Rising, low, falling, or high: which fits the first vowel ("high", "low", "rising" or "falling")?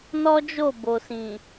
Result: high